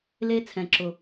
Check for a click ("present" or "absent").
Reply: present